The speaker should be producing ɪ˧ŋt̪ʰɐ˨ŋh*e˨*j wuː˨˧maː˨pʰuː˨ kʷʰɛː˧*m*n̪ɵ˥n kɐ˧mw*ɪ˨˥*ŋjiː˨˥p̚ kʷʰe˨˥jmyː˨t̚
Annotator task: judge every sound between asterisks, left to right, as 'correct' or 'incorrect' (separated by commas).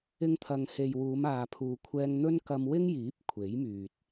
correct, incorrect, incorrect